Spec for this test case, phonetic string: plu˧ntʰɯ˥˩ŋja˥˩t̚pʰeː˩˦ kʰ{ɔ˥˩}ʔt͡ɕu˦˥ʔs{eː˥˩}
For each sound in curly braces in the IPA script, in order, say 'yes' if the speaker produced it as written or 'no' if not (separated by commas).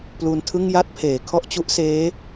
yes, no